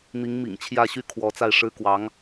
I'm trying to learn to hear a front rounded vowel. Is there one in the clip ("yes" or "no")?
yes